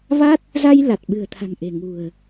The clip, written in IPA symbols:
v a˦˥ t̚ | z a˧ j l a˨˩ t̚ ɓ ɨ̤˨˩ ə̯ t̪ʰ a̤˨˩ ŋ ʔ e̤˨˩ ŋ ṳ˨˩ ə̯

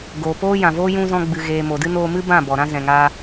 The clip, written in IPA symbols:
ɡ oː˨ p oː˦ j ã˨ v oː˦ j ũ˧ z ɔ̃˧ ɡ͡b ɨ˨ ɣ eː˨ m o˨ d ɨ˦ n oː˧ m ɨ˦ b ã˦˨ b ɔ˨ ɾ ã˦ z ɛ̃˨ ŋ a˧

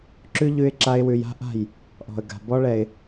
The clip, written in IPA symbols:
ǁ ʉ˦ ʎ ʉ˦ ɪ̯ ǁ a˦ ɪ̯ w ʉ˧ j a̤˦ ʔ a̤˦˨ j | ʔ ɔ̤˨ ə̯ ɡ a̤˨ b ɔ˦ ɭ ɛ˧ ɪ̯

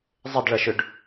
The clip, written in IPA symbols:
zˤ ɪ d ɭ ɐ ʃ ʏ ɖ

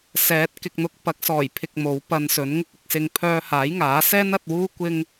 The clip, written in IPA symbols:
s ɛː˨˥ t̚ k ɪ˨ k̚ n̪ ʊ˧ k̚ p ɐ˨˥ k̚ s ɔː˨˩ j pʰ ɪ˨ k̚ m o˨˥ w p ɐ˧ n s ɵ˨˥ n ŋ ɪ˥ k̚ ɪ˧ k̚ s ɪ˧ ŋ pʰ œː˧ h aː˨˥ j ŋ aː˨˥ s ɛː˥ n ɐ˨˥ t̚ w uː˥ kʷ ɪ˥ ŋ

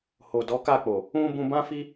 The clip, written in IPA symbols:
h o˨ d ɔ˨˦ k a˦˨ k͡p o˨ | ũ˦ b ũ˧ b ã˦ f i˦

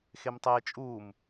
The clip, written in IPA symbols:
x e m tˤ eː t͡ʃʼ uː m

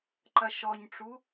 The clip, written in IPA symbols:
ǃ ɐ ʃ ɔ ɲ ʈ͡ʂ u

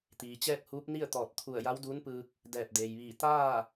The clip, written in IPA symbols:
t̪ iː˩ t͡ɕ ɛː˥˨ k̚ h uː˧˥ p̚ n i˥˨ ə̯ t̪ ɔː˧˩ t̚ t̪ʰ u˧˩ ə̯ j a˧˥ w d uː˧˥ n p ɯː˧ k̚ | d ɛː˧˩ p̚ d eː˩ j ʋ iː˧˩ t̪ aː˥˨

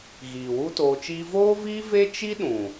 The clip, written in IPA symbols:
ɣ iː˨ w u˦ t oː˧ t͡ʃ iː˦ v oː˦ v iː˦ v e˦ t͡ʃ i˦ ɗ ũ˨

